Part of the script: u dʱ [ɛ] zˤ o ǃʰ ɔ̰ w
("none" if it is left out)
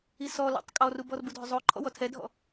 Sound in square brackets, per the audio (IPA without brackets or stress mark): ø